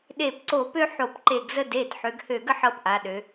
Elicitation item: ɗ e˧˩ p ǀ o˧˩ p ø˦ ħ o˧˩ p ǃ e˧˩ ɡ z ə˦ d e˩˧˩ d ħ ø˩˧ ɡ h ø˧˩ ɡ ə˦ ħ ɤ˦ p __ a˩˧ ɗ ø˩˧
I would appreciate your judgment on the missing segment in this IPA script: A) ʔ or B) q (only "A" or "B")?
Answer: A